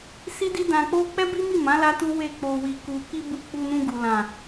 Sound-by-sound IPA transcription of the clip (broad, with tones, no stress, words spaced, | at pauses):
si˦ di˦dã˧k͡po˦ k͡pɛ˦bi˦mi˦˨mã˨˦ la˦tu˦ we˦˨k͡po˧ wi˨ku˨ki˧ bu˧k͡pu˧ nũ˧ɡu˨ lã˨